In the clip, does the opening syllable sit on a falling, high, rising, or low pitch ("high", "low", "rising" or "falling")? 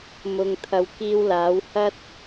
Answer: low